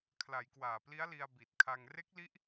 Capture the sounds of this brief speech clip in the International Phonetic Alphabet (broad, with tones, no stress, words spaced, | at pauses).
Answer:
kʰla˩˦jkwaː˨˩pli˦˥a̯li˧a̯ bi˨˩t̚kʰa˧ŋ re˦˥k̚li˦˥ʔ